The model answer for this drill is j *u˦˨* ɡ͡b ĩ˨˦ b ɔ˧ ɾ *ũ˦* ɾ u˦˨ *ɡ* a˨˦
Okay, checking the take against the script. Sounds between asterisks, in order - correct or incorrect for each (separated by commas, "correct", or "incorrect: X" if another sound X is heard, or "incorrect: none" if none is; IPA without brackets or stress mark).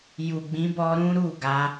incorrect: u˨, correct, correct